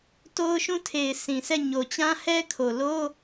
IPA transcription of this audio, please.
t o˦ ʊ̯ ʃ ũ˦ tʰ e˨ ɪ̯ s ĩ˨ sʰ ɛ˦˨ ɲ o˨ t͡ɕ ã˦ h ɛ˦ kʰ o˨ l o˦

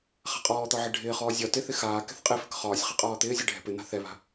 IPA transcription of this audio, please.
χ a̤ qʼ ɔː t̪ ɒ ʕ ɪ ɖʱ ɪː χ ɔː zʲ ɒ t ɪ θ ɪ x aː k ɛ̤ θ qʼ ɪ f ɪ k χ ɒː sʲ χ ɪ qʼ ɒː t̪ ɪː zʲ ɛ ɖʱ ɛ̤ p ɪ n̪ a̤ θ ɛ β a̤

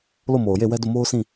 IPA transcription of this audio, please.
l o˦˨ m o˨ ʊ̯ j e˦˨ w ɛ˦ d o˦˨ m o˦ ʊ̯ s ĩ˦˨

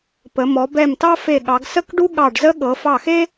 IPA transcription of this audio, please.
p ə˩˧ m ɔ˩˧ b ɛ˧˩ m t ɑ˥ f e˧˩ ɠ ɑ˩˧ ɡ s ə˥ k ɖ u˥ ɠ ɑ˧˩ ɖ z ə˥ ɠ ɤ˩˧ f ɑ˧˩ x e˥

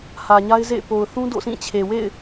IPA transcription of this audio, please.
h ä˨ ɲ a˦ ɪ̯ z ḛ˦˨ ɪ̯ p o˨ ʊ̯ θ ũ˦ d o̰˦˨ s ĩ˦˨ t͡ɕʰ e˨ w ḛ˦˨ ɪ̯

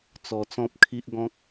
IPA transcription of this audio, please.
t͡s ɔ˧ t͡s ɔ̃˦ p̚ kʰ i˦ ʔ ɡ ɔ̃˦ k̚

